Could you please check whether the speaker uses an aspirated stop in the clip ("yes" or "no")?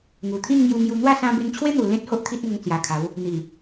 yes